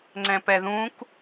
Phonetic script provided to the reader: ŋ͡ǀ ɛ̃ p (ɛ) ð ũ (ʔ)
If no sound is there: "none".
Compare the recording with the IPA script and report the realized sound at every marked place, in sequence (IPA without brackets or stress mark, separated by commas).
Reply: ɛ, k